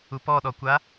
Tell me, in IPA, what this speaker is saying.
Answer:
u p ɔ ɗ ɔ kʷ a

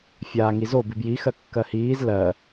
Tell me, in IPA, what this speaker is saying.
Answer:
fʲ aː ŋ i z o b i b j i x ɜ kː ɜ h iː z l ɜ

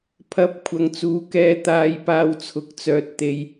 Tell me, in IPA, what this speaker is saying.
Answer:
pʰ ɐ˨˥ p̚ kʷʰ ɐ˨ ŋ t͡s uː˨˥ k ɛː˧ t̪ aː˨ j p aː˧ w t͡sʰ ʊ˨˥ k̚ t͡s œː˨ t̚ t̪ e˨ j

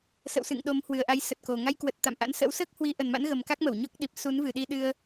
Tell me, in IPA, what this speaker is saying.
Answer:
s ə̰˧˨ w s ɨ̰˧˨ ŋ ɗ o˨˦ m h w ɨ˨˩ ə̯ ʔ a˨˦ j s ə˨˩ t̚ k o˨˩ ŋ a˧ j k w ə˨˩ t̚ t̪ a̰˧˨ m ʔ a̰˧˥ n s ə̰˧˥ w s əː˦˥ k̚ h w i˨˦ ʔ ə˨˩ n m a̰˧˥ n ɣ ə˨˩ m k a˦˥ k̚ m ə˧˩ w ɲ ɔ˦˥ k̚ ɗ i˨˩ p̚ s u˨˦ n v ɨ˨˩ ɗ i˧ ɗ ɨ˧ ə̯

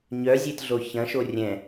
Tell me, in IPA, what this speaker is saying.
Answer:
ɲ œ zʲ e t ɮ o ç ɐ̃ ʃ o rʲ ɛ̃

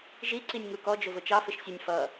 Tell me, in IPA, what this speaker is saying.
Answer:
ʒ i ǀ i nʲ ŋ u k ɔ d͡ʒ ʊ v ʊ t͡ʃ ɑ f ɪ ʃ sʲ ə nʲ f ʌ

